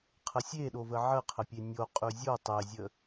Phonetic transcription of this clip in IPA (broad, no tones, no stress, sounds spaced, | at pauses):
qʰ ə sʲ e ɗ o v ə ʕ ə qʰ ə pʲ e nʲ o qʼ ʉ zʲ o tˤ e zʲ ə